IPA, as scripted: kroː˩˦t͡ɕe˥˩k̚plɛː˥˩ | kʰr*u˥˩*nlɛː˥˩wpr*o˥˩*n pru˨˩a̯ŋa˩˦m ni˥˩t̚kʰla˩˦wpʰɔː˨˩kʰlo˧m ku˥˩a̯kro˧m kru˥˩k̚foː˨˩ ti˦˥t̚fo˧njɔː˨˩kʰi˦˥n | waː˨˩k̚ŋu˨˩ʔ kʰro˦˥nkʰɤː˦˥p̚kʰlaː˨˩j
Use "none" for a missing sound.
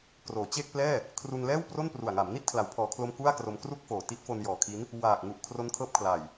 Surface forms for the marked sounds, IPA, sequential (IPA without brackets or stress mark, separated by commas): u˧, o˥˩